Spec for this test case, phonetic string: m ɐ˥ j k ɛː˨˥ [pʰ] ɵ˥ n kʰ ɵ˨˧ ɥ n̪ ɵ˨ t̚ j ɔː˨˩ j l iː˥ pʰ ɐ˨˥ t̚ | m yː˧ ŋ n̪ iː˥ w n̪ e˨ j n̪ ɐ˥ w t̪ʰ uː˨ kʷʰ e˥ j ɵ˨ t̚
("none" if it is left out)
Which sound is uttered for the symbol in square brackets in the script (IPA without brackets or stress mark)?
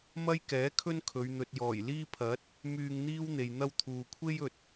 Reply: kʰ